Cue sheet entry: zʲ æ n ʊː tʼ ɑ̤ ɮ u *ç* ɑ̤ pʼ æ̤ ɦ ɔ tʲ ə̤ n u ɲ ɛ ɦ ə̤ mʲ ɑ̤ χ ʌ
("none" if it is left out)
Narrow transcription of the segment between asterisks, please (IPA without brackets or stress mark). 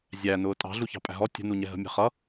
ç